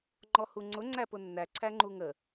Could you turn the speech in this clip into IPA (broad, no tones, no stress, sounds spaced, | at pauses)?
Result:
ŋ͡ǃ ɔ h u ŋ͡ǀ ʊ ŋ͡ǀ æ p ʊ nː æ ǀʰ æ ŋ͡ǃ u ŋ ə